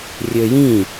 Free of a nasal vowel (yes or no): no